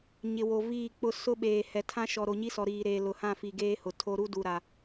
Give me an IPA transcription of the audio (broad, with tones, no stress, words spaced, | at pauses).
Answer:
ɲɪ˨wo˨viː˦˨ k͡pʊ˦ sʊ˦ɓeː˨ hɛ˨tʰã˦ʃɔ˨ ɾo˨ɲi˦sɔ˨ ɾiː˨ ɾeː˨lʊ˨hã˦˨ fi˨ ɡeː˦hʊ˨tʰo˦ ɾu˦du˨ɾa˨